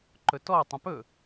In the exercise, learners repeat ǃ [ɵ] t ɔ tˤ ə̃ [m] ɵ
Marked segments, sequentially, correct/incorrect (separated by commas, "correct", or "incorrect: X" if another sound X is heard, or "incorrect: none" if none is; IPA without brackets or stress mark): correct, incorrect: p